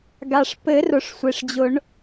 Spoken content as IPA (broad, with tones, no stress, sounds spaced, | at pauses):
ɡ a˩ ʂ p ɘ˨˩˦ r ʊ˩ ʂ sʷ e˩ ʂ d͡ʑ ʊ˨˩˦ ɳ